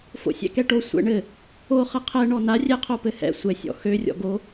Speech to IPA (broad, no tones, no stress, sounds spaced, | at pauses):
f o̰ sʲ ɛ̰ k ɛ ʈ o sʷ ɛ̰ ɳ ɘ | o χ ɘ qʰ ɛ ɳ ɔ n a rʲ ɛ qʰ o p ɘ h ɛ̰ sʷ ɛ sʲ ɔ̰ x ø rʲ ɔ̰ ɡ o